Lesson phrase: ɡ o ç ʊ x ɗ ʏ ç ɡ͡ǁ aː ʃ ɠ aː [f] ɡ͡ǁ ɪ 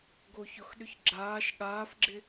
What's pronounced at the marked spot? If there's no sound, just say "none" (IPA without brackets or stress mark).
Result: f